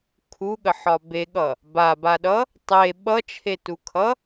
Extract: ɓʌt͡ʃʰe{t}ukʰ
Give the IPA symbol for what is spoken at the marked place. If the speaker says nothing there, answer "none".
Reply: t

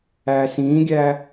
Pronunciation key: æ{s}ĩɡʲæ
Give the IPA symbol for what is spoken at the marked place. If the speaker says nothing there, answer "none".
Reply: s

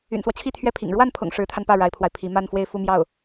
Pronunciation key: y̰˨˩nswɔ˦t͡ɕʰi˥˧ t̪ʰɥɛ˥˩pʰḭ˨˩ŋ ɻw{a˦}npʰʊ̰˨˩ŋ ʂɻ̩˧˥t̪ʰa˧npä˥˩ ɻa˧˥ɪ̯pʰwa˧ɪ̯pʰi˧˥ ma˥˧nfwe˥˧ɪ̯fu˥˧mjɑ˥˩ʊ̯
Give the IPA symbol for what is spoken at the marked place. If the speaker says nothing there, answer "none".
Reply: a˥˩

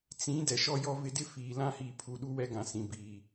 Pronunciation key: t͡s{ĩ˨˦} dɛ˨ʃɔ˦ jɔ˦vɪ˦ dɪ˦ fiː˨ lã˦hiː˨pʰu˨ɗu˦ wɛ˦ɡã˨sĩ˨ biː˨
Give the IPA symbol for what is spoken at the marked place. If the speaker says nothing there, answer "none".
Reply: ĩ˨˦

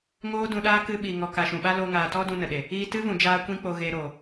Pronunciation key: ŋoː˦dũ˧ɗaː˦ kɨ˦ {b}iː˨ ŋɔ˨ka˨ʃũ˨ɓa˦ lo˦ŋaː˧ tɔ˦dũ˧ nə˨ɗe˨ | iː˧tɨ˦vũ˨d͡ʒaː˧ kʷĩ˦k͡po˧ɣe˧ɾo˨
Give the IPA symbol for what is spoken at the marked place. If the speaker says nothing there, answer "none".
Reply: ɓ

